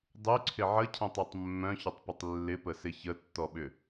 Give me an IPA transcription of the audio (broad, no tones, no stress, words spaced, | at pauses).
dˤyǀʰɪ ʕəcʰə̃tˤetˤ mːœ̃çʏtˤpʏtˤ lːɪpəsɪ çətːɔɓʏ